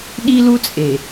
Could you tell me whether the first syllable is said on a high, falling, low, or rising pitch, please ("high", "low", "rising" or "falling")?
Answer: high